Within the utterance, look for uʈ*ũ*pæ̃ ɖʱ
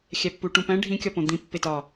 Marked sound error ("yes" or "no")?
no